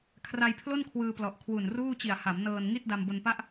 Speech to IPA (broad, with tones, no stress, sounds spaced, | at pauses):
kʰ r a˧ j pʰ l o˥˩ n kʰ w ɯː˧ p l ɔ˨˩ ʔ kʰ w u˨˩ n r uː˥˩ t͡ɕ i˨˩ a̯ h a˩˦ m n ɤː˧ n ŋ i˥˩ t̚ d a˧ m b o˧ n p a˥˩ ʔ